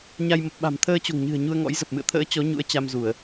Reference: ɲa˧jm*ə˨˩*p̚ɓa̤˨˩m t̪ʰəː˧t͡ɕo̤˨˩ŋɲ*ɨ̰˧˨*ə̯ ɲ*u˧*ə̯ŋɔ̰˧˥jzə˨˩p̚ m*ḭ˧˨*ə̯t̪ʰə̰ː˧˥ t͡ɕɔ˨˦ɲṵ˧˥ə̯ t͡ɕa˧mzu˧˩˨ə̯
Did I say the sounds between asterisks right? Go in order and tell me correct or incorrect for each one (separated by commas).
correct, incorrect, correct, incorrect